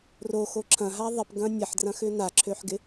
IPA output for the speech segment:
r o x o ǁʰ ɐ̃ ɦ a ðˤ ɪ p ɡ ɐ̃ nʲ ɐ ħ d r ɐ̃ x ʏ n a ǁʰ ø ħ ɡ ɪ

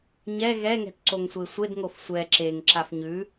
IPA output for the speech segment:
ɲ ɛ ɣ ɛ ŋ ɛ̤ t ǀ o ŋ sʷ e sʷ e d ŋ o f sʷ ɛ ǁ e ŋ ǁ a f ɲ ʉ

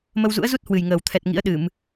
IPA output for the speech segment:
m ə˧ w z ṵ˧˥ ə̯ z u˦˥ t̚ h w ɨ˨˩ j ŋ əː˨˩ w t̪ʰ ɛ˨˩ t̚ ŋ ḭ˧˥ ə̯ ɗ ɨ˧˩˨ m

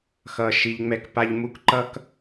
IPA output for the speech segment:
x ʌ˨ ʃ i˨ ʎ ŋ͡m ɛ˦ k p a˦ ʎ m u˦ k ǃ ʌ˦ k

